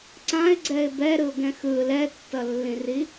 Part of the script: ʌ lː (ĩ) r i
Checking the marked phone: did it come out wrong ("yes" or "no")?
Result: no